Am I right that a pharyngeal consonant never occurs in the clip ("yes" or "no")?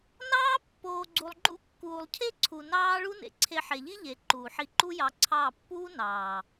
no